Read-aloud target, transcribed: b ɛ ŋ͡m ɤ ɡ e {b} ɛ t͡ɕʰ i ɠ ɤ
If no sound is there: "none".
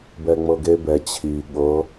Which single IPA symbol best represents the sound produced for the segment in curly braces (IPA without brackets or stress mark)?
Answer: b